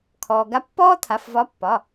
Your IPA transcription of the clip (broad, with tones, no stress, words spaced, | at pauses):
kʰɔː˩ɡa˨˥pːɔː˥t̪ʰa˩˧˩f vɒ˨˥pːɒ˩˧˩